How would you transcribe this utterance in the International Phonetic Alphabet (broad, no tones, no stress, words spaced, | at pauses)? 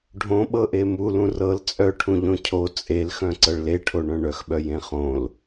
ɖʱõɓɤʔe mulũ rɤl t͡sʼœʈʰũ ʎõcʰo t͡sʼelxœ̃ ǀɤɭleʈʰoɳœ̃ ɳœxɓœ jẽχõl